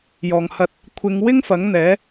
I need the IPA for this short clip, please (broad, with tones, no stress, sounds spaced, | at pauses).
j ɔː˨˩ ŋ h ɐ˧ t̚ | kʷʰ ɪ˨˧ ŋ w ɪ˥ ŋ f ɐ˨˥ ŋ n̪ ɛː˨˥